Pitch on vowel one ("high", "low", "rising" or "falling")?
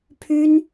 high